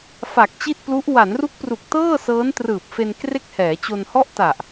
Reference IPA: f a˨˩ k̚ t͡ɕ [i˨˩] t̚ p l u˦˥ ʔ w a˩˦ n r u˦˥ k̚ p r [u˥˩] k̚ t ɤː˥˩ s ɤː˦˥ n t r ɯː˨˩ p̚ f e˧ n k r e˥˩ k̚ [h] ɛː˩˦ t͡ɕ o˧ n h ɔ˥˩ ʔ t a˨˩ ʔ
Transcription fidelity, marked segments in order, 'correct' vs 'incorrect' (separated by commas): incorrect, incorrect, correct